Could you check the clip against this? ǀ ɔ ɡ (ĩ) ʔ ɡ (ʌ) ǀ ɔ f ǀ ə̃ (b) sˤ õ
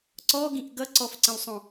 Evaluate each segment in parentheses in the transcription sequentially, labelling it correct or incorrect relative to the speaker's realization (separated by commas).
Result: correct, correct, incorrect